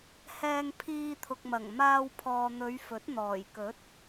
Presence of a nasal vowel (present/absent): absent